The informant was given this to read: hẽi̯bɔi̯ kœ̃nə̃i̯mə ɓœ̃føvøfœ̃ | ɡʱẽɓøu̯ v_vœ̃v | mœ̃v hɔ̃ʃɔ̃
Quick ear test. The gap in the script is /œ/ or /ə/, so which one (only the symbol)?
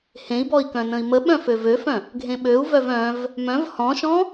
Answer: œ